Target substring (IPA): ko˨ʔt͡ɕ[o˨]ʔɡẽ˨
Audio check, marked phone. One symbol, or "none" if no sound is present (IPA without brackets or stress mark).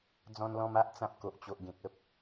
o˨